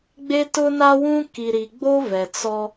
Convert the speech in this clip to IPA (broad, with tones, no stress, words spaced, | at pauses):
ɡ͡be˦tʊ˦na˦wũ˦ ki˨ ɾi˨ɡ͡bo˦ vɛ˨ t͡sɔ˦